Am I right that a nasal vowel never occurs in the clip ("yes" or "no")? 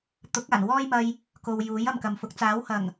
yes